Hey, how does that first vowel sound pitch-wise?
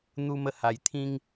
high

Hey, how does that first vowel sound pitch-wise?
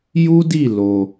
high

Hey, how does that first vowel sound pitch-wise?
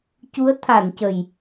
rising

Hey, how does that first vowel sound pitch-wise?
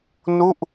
falling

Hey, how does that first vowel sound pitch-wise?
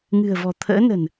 low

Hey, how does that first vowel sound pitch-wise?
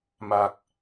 low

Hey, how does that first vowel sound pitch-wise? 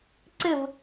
falling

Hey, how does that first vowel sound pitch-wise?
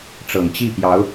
low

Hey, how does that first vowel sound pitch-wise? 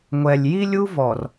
low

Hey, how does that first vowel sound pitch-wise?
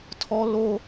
high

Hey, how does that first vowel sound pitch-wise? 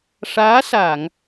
rising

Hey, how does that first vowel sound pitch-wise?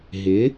rising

